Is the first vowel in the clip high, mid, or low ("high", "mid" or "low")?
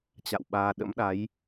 low